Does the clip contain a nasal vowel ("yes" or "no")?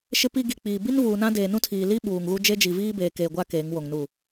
yes